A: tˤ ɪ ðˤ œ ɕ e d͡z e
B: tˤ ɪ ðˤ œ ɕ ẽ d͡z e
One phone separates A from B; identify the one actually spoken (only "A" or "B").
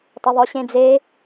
B